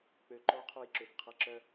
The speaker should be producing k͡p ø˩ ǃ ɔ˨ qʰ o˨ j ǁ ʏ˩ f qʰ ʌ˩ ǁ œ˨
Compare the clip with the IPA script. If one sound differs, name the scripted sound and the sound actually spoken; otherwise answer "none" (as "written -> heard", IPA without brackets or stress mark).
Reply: none